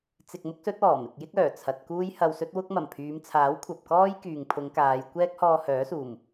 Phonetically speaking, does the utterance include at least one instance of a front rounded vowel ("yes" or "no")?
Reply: yes